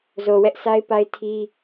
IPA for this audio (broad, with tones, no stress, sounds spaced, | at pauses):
z o˨ w ɛ˦ ʔ sʰ a˦ ɪ̯ p a˦ ɪ̯ tʰ i˦